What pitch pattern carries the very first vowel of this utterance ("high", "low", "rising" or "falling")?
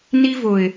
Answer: high